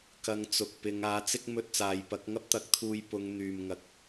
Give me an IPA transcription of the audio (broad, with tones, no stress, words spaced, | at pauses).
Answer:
kɐ˧ŋt͡sʊ˨k̚pɪ˨˧ŋ aː˨˥t͡sɪ˥k̚ mɵ˧t̚t͡saː˨jpɐ˨˥k̚ ŋɐ˥p̚t̪ɐ˨˥k̚t̪ʰuː˧j pʊ˨˧ŋn̪yː˨mŋɐ˨k̚